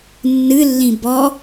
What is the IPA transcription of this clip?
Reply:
nːɨlːĩ bɔ

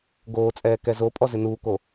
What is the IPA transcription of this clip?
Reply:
ɡoːt͡sʼɛː kɛzopʼɔ zɪnuːko

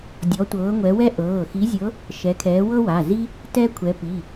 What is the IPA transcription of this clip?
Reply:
dʲɔ˨˦tʷɤː˨˦ŋʷɛ˨˦ wɛ˥ʔɤː˩˧˩ xi˨˦zʲɤ˨˦ | ʃɛ˨˦kʰɛː˨˦wɤ˥wa˩˧˩ zi˥ | tɛ˥kʷʰɛ˨˦pi˩˧˩

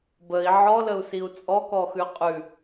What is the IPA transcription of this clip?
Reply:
bəi̯ ʕɔləu̯siu̯ t͡sʼɔkɔxʉ qʼʉ

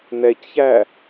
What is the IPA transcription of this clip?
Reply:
nɛcçæ

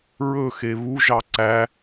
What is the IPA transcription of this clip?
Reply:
ɹɵxe βuʒɑ ǀæ

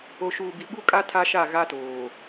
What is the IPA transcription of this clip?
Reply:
o˨ʃuː˨bi˨ ɓu˦kʼa˦ tʰa˦ʃa˦˨ ɣa˦toː˨

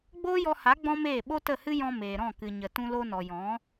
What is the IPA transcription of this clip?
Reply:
ɡ͡boː˦jɔ˧ha˨˦ ɡ͡bɔ̃˦meː˦˨ ɓo˦tə˦˨hɨ˦ jɔ̃˧meː˨ɾɔ̃˦˨ kɨ˨ɲə˨ tũ˧lo˧nɔ˨jɔ̃˨˦

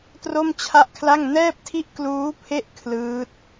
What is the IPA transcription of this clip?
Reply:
tro˥˩mt͡ɕʰa˥˩ʔkʰla˥˩ŋ nɛː˥˩p̚tʰi˥˩ʔ kluː˦˥pʰe˥˩ʔ kʰlɯː˦˥t̚

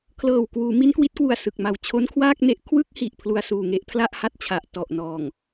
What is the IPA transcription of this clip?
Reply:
kʰlɤː˨˩wkwuː˩˦ mi˦˥nkwi˦˥t̚kwu˨˩a̯ sɯ˨˩k̚ma˨˩w t͡ɕʰo˦˥nkʰwaː˥˩k̚ne˦˥ʔ kʰwɯ˥˩k̚hi˨˩ʔ pʰlu˧a̯suː˨˩ŋe˦˥ʔ pʰla˥˩ʔha˥˩t̚t͡ɕʰa˨˩ʔ tɔ˨˩ʔnɔː˨˩ŋ

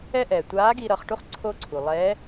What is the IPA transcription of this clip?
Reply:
ɛ˥ʔɛː˩ tʷaː˧˥ ɡi˧ ɾʌː˩˧χʈu˥χ ǀʰoː˥ǀʰuː˩ lˠɛː˧˥

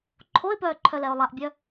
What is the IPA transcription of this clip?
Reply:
ǃʰoɪ̯pœː ǃʰœlɛʊ̯lˠaʔbʲœ

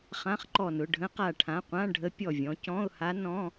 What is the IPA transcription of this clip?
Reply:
χã˧˥˧χǃɔ˧˩nʊ˩˧˩ ɖʱə̃˧˥qa˧˩ʈʰã˩˧˩qʷã˧˥˧ ɖʱə˧˥ pʲɔ˧˩vʲɔ̃˩˧cɔ̃˧˥˧ʊ̯ha˧˥ nɔ̃˧˥˧

